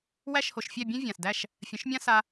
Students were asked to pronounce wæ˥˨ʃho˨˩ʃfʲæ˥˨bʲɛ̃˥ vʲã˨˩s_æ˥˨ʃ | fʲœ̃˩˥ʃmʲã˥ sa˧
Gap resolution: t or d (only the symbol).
d